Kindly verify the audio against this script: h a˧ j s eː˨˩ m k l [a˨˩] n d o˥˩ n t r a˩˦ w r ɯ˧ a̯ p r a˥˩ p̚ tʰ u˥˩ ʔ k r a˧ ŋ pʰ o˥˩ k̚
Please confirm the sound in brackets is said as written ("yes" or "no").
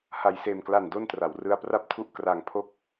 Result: yes